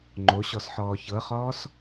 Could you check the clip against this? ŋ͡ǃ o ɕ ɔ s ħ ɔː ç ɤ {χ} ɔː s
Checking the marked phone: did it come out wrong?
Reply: no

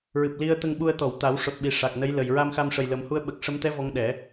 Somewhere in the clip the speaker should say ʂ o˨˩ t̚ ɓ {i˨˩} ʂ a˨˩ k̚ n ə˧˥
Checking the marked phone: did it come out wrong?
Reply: no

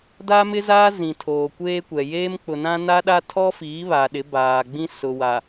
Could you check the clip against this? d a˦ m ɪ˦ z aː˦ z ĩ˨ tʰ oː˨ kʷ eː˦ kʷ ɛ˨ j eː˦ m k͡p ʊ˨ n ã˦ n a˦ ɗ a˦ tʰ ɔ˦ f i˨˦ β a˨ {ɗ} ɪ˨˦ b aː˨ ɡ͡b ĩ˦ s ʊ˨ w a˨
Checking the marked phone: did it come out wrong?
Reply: no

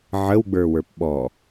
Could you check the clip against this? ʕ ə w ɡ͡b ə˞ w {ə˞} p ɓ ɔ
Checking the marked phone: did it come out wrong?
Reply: no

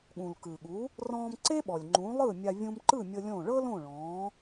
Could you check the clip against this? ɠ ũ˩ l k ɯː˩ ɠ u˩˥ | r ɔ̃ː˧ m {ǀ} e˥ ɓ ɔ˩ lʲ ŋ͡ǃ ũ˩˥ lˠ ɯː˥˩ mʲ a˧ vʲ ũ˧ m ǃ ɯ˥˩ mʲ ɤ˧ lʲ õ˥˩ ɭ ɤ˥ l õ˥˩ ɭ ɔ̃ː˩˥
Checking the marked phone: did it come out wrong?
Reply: no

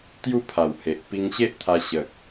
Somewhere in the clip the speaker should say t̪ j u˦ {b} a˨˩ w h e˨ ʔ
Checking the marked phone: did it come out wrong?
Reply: yes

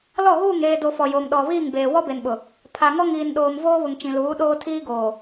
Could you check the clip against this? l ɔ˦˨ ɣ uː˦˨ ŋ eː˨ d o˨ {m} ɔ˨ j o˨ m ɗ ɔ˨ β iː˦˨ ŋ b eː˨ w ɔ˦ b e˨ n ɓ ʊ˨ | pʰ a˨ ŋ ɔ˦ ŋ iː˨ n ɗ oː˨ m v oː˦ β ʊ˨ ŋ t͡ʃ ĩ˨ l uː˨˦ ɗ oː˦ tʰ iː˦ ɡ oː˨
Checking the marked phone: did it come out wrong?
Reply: yes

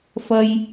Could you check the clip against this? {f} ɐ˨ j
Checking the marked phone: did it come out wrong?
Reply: no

